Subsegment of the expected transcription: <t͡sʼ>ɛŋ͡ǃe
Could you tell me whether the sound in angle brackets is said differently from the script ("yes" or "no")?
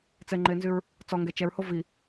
yes